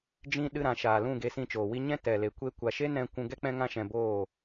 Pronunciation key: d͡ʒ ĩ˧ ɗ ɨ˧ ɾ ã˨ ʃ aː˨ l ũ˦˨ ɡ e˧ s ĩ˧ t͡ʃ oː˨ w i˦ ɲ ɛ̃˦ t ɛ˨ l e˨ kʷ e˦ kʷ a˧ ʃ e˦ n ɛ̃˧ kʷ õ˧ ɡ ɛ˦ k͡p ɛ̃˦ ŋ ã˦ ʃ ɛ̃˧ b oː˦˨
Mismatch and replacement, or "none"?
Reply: õ˧ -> ũ˧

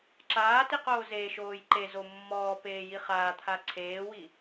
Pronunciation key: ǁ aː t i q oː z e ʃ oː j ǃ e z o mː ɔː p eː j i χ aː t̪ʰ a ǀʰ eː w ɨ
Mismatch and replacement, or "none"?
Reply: ɨ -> i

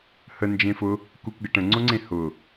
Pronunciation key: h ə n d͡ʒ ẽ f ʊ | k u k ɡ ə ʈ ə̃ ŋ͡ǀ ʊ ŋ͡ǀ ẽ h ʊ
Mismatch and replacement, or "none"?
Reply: none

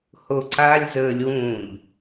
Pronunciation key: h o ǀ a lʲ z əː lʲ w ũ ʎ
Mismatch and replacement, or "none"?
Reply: none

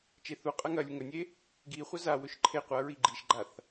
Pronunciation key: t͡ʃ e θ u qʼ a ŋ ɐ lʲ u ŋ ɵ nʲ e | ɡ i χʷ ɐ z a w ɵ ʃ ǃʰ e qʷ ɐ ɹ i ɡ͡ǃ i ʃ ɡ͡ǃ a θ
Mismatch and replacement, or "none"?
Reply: none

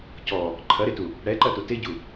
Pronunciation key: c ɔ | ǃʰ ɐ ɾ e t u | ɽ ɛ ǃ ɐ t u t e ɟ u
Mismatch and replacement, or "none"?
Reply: none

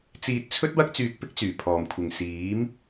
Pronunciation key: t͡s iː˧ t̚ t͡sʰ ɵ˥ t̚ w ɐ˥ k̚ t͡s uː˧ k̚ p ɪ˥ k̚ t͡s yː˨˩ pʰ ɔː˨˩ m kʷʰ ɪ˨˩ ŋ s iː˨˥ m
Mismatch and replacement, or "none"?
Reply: uː˧ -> yː˧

